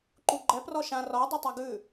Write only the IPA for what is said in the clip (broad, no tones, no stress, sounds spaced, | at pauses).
ǃ u ɡ͡ǃ ɛ p r ɔ ʃ ã r ɔ dˤ u tˤ a ɡ ʉ